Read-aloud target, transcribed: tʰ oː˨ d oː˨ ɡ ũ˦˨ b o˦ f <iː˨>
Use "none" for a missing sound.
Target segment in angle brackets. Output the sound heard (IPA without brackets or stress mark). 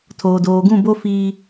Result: iː˦